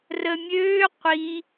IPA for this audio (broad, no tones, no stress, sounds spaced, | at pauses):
r ə mʲ øː qʷ i